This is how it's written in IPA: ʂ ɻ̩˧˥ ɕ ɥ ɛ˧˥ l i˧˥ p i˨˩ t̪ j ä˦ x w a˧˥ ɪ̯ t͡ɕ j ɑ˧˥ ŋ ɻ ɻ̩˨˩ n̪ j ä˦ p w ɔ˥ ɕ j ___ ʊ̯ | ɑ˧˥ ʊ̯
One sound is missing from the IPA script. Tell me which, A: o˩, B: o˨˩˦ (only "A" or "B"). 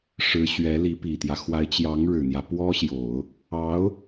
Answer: B